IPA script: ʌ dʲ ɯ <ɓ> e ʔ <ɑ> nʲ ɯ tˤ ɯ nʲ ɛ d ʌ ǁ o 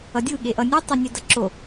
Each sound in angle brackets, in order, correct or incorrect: incorrect: ɠ, incorrect: ʌ

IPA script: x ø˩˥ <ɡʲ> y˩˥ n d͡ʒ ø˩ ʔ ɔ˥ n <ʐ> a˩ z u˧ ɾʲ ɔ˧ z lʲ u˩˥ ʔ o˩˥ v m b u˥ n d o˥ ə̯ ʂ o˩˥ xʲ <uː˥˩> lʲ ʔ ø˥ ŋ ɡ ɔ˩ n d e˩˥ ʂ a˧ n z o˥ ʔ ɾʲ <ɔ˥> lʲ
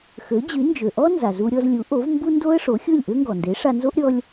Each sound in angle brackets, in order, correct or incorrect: incorrect: d͡ʑ, incorrect: z, incorrect: u˥˩, correct

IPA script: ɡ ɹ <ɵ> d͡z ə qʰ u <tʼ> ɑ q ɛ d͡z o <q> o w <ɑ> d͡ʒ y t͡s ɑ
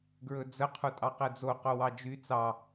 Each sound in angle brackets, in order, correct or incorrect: correct, correct, correct, correct

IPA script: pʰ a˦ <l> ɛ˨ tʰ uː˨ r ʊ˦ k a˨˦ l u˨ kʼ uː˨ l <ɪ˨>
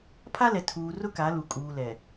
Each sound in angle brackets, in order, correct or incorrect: correct, incorrect: ɛ˨

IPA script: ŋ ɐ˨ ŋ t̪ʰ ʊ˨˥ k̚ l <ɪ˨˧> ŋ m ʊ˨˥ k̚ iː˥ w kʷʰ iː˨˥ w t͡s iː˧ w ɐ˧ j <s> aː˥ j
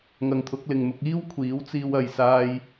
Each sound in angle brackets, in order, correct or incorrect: incorrect: ɪ˨, correct

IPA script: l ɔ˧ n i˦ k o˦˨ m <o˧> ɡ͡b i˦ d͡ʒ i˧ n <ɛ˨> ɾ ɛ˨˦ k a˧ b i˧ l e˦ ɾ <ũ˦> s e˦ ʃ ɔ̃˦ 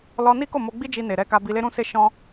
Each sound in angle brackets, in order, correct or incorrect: correct, incorrect: e˨, correct

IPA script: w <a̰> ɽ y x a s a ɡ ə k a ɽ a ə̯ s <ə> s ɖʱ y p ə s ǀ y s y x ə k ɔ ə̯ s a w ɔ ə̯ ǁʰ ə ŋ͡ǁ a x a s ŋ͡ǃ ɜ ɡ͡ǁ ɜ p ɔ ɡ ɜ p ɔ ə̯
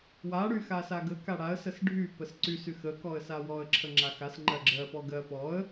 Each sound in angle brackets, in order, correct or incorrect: incorrect: a, correct

